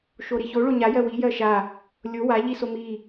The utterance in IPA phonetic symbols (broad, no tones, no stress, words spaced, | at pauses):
ʃoɾiço ɭoɲa jɜwi jɜʃa | lʲo wa ʎisomi